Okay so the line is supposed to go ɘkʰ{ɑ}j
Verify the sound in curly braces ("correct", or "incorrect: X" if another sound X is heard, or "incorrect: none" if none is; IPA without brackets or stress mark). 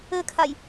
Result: incorrect: a